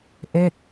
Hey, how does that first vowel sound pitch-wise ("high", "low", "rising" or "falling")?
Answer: falling